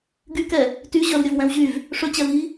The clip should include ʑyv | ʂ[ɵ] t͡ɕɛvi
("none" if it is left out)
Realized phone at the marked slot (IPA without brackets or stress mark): ɵ